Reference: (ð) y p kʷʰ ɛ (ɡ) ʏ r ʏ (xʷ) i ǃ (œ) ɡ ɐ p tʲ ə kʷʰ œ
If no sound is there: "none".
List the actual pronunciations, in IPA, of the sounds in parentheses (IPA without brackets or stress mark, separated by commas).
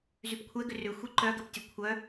z, ɡ, xʷ, œ